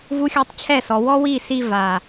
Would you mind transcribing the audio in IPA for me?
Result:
v u˧ xʲ ɔ˧ tˤ t͡ɕʰ ɛ˦˨ s ɔ˨ w ɔ˦ w i˦˨ s i˧ v a˨

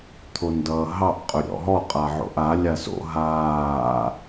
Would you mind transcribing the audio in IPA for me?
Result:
t̪ʰ o n d ʌː ɦ ɑ ʔ qʼ ɵ ɾʲ ɔ̰ ɦ ɔ qʼ a ʕ o̰ ʔ a lʲ a s o̰ ɦ aː

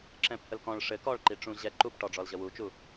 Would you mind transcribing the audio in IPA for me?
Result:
ǁ ɛ̃ p h ə l k ɔ̃ ɭ ʂ ɘ k ɔ ɭ ǃ i ʈ͡ʂ ũ ʑ ɛ ǃ u p ʈ ɔ ɖ͡ʐ ɔ l ʑ ə w u t͡ʃ u

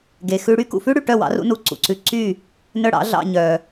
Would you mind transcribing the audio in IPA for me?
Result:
ɡ e˩ x ʉ˧ ɽ y˥ k ṵ˩ f ʉ˥ ɽ y˩ ʈ œ˥˩ w ɑ̰˩˥ r ṵ˩˥ n u˩ ǀ ṵ˩ ǀ ʉ˧ ǀ yː˥˩ | n œ˥˩ ɽ ɑ̰˩˥ ɮ ɑ̰˧ ɲ œː˩

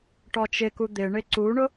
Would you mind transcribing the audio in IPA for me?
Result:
ʈ ɔ t͡ʃ ɪ k u d̪ ɪ ɳ ɪ ǀ u ɳ ʊ

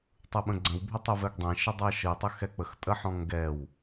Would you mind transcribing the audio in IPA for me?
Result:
tˤ ɯ ɓ ə̃ ɡ͡ǀ ə̃ w bʱ ə tˤ ɯ v ɛ ɡ dˤ ɛ̃ ʃ ə dˤ ɜ ʃ ɯ tˤ ə x ɛ k͡p ə x tʼ ə ħ ɔ̃ ŋ ɡ ɛ w

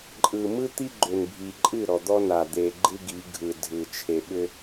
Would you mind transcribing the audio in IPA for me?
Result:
ǃʼ ɯ˨ m ɯ˦ t̪ i˦ ɡ͡ǃ ʏ˨ n bʱ i˨ ǃʼ ɨ˦˨ ɾ ɔ˨ d̪ ɔ˦ n a˨ d̪ e˨ ɡ͡ǃ ɨ˦ ɡ i˨˦ ɡʱ ɯ˨ dʱ ɯ˨ t͡ʃʰ e˨ ɓ ʏ˦

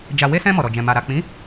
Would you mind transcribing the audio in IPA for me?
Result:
d͡ʒ a˨ w e˧ s ɛ̃˧ m ɔ˨ ɾ ɔ˨ d͡ʒ ɛ̃˨ m a˨ ɾ a˨ k͡p ĩ˨˦

